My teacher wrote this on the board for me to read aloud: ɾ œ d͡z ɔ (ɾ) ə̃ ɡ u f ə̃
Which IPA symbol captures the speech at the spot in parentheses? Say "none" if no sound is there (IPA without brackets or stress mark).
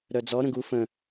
ɾ